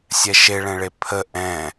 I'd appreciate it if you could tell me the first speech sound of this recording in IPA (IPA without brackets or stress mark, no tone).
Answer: sʲ